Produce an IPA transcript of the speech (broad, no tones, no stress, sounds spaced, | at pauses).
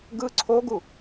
ɡ ɯ ǀʰ o ɡ u